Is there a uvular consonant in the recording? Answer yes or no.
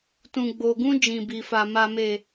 no